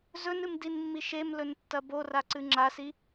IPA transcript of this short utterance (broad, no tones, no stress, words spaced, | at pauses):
zɵnɨmdinmːi ʃemlɵntːɐ boraǀɨ ŋ͡ǁasi